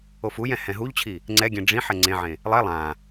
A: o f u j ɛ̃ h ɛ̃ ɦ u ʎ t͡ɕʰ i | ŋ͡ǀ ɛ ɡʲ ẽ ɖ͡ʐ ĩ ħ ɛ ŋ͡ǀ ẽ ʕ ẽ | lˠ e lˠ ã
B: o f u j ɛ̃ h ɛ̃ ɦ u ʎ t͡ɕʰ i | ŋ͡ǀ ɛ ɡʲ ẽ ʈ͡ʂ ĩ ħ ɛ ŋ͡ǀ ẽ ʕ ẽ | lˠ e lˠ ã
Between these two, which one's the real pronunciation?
A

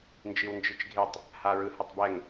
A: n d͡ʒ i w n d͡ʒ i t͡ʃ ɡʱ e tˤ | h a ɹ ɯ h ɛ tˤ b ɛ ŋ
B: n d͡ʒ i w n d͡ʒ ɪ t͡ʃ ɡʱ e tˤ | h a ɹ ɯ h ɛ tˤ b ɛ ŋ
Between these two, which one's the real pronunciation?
A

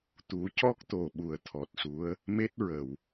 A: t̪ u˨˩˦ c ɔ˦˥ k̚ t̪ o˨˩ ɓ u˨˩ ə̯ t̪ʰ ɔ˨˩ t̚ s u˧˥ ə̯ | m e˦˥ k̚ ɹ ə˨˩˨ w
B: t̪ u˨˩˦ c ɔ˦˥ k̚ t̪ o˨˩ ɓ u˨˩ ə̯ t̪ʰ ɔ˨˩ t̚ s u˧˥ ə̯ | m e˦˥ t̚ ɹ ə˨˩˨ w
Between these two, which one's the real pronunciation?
B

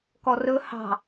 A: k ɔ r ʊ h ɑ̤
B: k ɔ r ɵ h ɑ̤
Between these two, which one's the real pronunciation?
B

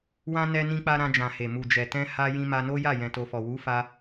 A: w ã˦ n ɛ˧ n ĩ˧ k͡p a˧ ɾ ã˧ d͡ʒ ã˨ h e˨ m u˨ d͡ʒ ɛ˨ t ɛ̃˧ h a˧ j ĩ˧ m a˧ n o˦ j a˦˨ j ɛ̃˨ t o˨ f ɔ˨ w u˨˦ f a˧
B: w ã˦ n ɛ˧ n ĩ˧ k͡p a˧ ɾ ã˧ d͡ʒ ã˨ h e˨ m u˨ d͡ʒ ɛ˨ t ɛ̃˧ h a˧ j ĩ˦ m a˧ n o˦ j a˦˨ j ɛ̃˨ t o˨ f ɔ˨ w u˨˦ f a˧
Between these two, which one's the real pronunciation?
A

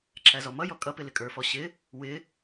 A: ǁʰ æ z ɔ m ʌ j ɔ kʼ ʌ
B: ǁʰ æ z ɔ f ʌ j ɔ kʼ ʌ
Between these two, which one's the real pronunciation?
A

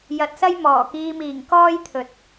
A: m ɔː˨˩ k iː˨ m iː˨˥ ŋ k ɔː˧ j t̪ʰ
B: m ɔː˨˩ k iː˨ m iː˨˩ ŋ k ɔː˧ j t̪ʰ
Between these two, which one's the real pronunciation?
B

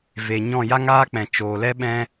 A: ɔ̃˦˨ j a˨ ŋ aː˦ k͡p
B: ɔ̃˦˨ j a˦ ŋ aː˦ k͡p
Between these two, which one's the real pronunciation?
B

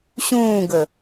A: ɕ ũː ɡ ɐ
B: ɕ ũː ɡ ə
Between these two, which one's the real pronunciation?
B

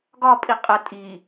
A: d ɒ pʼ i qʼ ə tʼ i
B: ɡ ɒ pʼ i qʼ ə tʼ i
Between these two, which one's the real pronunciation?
B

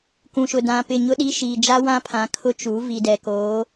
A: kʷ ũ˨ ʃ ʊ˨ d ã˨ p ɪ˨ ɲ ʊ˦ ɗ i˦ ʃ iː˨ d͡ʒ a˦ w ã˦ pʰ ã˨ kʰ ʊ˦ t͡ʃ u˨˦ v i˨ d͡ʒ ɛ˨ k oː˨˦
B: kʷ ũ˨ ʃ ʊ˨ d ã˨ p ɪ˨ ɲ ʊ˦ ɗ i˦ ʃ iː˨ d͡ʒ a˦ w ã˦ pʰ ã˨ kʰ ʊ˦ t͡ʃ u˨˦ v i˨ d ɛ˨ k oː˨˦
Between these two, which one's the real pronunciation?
B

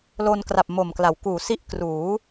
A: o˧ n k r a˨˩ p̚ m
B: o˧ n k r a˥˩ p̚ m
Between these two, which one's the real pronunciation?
A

